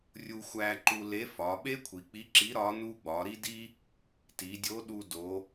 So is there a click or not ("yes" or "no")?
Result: yes